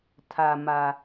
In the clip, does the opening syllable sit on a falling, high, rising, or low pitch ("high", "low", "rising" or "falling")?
low